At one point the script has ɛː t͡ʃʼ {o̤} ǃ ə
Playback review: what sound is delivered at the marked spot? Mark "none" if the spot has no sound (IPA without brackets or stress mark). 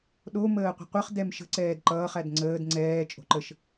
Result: o̤